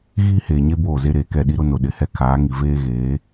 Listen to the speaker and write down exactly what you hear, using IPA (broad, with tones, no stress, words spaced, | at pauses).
ɣiː˦heː˨ɲe˦ boː˦˨ze˦ɾeː˨kɛ˦˨ ɗi˦ɾʊ˦nʊ˨ ɗɪ˨hɛ˦ kʰaː˨˦ŋi˨ veː˦ɣeː˨˦